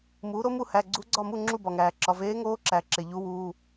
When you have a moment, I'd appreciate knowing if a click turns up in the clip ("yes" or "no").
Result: yes